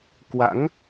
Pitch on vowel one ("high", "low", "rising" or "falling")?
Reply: rising